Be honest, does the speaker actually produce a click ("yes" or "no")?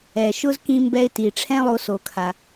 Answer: no